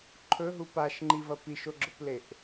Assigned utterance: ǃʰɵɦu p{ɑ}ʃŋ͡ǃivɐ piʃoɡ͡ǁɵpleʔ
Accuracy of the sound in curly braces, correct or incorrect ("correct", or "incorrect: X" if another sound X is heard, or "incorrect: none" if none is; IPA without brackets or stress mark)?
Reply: incorrect: a